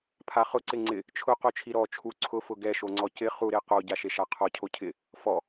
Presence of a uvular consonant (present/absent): present